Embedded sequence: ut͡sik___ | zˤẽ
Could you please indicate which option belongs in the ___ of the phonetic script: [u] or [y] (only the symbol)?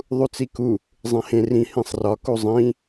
u